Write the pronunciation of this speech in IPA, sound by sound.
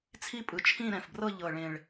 t͡sʰ i˥˧ pʼ ɯ˨˩ t͡ʃʰ ĩ˥˧ ɾ ɛ̃˨˩ f b r ɤ˥˧ ʎ ɤ˨˩ ɭ ẽ˨˩ ɭ

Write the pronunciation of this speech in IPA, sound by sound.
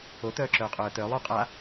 o t œː ǁ œː qʼ œː t œ lˠ u qʼ a

